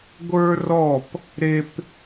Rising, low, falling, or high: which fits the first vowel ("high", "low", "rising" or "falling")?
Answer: high